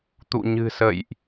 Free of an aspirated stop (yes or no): yes